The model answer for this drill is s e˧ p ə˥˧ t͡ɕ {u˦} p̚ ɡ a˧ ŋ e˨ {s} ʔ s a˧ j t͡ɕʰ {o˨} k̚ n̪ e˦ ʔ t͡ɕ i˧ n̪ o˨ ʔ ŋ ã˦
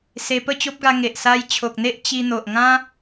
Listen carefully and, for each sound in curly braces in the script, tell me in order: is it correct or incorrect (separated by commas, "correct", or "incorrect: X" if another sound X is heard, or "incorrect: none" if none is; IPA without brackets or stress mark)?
incorrect: o˦, incorrect: none, correct